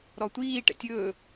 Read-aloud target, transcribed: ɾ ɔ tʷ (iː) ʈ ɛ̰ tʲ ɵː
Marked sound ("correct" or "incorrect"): correct